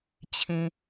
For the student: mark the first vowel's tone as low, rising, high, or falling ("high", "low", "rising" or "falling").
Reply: low